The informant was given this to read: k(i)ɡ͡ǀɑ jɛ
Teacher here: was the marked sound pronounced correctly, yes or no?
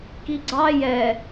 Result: yes